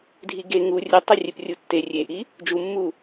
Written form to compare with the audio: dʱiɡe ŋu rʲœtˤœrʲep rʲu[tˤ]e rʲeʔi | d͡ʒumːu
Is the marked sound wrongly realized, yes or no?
yes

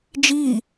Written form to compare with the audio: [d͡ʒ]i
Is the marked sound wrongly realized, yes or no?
no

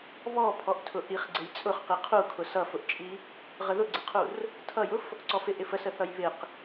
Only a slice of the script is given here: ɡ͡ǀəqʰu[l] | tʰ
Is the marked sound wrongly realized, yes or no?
yes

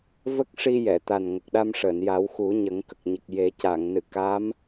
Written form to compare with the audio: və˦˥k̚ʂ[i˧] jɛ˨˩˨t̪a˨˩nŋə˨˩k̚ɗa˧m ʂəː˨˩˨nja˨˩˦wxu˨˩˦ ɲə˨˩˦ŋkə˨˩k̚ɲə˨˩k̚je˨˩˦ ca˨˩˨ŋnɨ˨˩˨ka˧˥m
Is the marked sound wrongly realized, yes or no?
no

